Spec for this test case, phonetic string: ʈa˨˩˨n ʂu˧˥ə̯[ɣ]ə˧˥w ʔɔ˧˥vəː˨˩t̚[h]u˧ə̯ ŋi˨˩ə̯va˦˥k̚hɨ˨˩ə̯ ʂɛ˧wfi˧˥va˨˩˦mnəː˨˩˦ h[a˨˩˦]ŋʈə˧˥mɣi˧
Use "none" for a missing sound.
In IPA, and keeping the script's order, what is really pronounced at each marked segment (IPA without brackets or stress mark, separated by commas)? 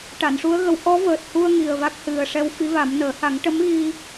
ɣ, h, a˨˩˦